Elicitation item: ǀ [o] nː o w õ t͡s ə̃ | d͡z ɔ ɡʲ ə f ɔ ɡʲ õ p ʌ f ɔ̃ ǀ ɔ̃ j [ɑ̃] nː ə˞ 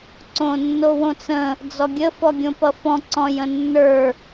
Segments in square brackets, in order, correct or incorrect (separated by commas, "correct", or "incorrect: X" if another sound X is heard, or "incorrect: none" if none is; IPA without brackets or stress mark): incorrect: õ, incorrect: ə̃